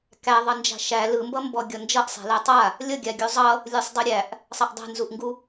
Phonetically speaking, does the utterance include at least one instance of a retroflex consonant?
no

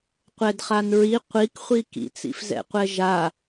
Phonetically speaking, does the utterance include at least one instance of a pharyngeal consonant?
no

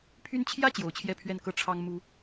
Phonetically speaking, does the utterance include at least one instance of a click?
no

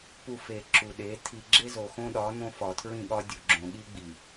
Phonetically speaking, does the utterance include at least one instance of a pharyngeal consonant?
no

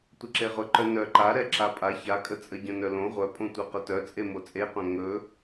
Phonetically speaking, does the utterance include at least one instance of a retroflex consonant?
no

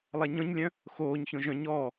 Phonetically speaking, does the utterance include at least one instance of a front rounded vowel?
yes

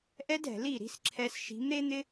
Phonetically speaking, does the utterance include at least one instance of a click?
yes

